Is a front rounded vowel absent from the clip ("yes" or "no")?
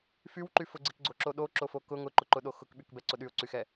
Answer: no